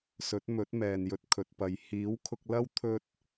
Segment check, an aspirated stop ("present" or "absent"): present